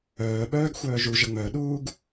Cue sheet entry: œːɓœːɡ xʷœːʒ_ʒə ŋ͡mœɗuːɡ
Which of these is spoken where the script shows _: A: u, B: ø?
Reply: A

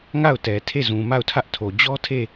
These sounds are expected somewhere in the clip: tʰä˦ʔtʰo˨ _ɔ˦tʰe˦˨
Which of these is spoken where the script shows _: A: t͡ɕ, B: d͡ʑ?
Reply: B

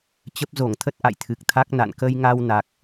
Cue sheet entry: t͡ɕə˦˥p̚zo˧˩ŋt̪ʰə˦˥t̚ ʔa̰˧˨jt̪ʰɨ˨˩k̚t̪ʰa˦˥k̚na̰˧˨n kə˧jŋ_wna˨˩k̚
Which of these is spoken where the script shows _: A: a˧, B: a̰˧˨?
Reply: A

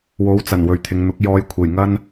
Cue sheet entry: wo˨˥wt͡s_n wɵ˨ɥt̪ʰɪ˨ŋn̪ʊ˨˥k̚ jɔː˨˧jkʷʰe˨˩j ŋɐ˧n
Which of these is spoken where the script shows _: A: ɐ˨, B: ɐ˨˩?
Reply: B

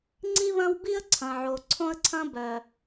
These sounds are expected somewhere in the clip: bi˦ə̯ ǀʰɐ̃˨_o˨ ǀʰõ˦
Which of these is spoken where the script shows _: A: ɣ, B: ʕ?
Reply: B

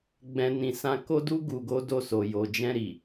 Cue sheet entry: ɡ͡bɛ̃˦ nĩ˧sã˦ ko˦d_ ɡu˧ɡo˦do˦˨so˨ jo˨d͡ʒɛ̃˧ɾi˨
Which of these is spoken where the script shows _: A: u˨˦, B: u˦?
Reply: B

